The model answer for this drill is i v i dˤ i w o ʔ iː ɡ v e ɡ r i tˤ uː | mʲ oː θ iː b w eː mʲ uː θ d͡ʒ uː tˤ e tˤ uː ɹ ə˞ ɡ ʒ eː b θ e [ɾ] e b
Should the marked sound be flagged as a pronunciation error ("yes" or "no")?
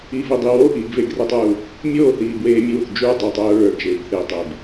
yes